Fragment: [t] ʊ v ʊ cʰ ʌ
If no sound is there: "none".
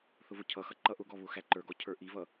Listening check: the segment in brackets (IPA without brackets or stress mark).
θ